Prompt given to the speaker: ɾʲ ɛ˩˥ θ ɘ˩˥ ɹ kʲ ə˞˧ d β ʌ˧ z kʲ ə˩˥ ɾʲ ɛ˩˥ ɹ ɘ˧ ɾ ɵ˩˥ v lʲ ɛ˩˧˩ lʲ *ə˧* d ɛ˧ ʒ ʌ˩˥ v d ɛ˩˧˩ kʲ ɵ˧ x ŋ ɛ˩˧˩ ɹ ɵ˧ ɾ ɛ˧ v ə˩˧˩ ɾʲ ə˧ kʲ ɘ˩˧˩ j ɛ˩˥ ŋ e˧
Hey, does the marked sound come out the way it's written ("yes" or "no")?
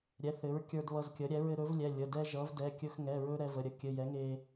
no